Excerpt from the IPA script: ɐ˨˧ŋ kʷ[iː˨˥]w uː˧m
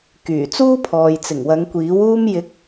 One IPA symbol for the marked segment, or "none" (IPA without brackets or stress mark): iː˨˥